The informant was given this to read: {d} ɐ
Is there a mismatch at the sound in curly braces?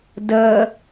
no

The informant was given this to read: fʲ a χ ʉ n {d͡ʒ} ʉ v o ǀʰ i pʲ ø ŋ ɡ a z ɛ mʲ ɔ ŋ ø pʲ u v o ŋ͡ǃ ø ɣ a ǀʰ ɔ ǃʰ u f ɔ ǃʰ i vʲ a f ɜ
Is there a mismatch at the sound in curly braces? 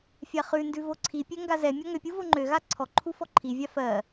yes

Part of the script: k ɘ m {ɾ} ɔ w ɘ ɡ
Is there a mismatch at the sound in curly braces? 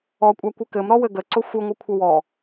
no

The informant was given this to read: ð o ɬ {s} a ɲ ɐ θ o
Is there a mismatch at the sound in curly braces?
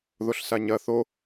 no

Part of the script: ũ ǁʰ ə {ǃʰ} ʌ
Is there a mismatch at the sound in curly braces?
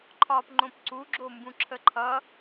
no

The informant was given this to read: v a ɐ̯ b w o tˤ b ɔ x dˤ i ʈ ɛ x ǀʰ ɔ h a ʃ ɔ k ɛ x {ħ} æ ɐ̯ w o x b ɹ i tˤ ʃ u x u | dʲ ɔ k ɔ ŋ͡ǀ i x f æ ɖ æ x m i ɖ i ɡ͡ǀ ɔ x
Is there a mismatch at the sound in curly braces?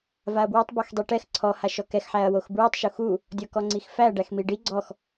no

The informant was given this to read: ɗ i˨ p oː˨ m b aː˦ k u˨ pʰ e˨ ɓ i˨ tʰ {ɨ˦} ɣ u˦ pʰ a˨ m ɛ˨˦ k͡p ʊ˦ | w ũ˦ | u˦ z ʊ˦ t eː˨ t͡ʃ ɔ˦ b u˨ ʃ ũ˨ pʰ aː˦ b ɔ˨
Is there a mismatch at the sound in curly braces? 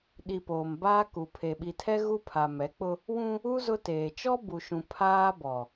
yes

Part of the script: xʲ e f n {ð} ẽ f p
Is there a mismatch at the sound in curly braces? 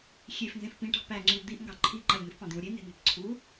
yes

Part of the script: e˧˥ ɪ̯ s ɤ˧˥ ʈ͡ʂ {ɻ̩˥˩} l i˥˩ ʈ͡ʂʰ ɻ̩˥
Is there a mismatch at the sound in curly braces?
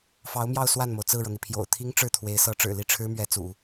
yes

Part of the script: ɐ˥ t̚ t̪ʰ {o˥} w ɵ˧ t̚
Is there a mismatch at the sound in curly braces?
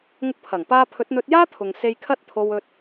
yes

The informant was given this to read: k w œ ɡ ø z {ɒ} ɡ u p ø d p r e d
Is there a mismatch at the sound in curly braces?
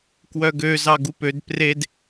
yes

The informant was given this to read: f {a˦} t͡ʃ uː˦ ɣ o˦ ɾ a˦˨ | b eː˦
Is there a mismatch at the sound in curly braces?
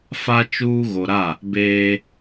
no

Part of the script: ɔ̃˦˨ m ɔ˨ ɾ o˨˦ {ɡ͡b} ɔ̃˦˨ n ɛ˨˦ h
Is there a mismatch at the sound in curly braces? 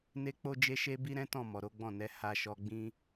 no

